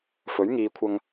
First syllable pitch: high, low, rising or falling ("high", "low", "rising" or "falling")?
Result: rising